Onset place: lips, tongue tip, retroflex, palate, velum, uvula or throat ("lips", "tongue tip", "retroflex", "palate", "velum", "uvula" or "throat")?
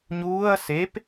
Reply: palate